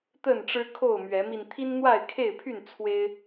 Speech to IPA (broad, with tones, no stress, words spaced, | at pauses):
t̪ə˥˨nʈ͡ʂɻ̩˦kʰo˥˨ʊ̯ mɥɛ˨˦mi˧n t̪ʰi˦nn̪wa˥˨ɪ̯kʰe˥˨ɪ̯pʰy˥˨n t͡sʰwe˦ɪ̯